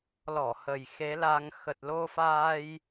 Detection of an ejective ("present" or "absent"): absent